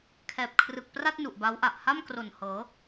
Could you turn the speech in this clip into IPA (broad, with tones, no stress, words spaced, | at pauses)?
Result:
kʰɛː˨˩p̚kʰrɯ˨˩k̚pra˥˩t̚ nu˨˩ʔba˦˥wʔa˨˩ʔ ha˥˩mkro˨˩n hɤː˩˦